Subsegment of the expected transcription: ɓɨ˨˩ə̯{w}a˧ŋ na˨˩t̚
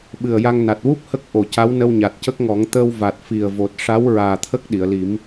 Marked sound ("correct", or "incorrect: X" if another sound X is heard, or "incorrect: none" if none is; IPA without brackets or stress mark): incorrect: j